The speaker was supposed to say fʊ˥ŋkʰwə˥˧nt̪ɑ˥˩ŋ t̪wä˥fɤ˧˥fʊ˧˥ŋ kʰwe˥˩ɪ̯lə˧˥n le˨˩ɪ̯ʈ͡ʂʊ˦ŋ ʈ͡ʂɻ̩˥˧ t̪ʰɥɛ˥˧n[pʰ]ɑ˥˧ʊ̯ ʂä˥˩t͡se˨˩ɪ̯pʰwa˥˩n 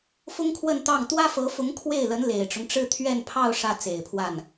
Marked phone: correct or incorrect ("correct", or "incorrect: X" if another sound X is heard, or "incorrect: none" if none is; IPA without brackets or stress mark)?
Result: correct